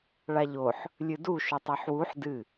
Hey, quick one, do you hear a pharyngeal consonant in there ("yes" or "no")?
yes